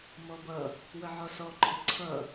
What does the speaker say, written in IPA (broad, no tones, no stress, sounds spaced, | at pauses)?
m ɔ b ʌ | w ə ʕ ɒ s ɔ ǃʰ ɪ ǀʰ ʌ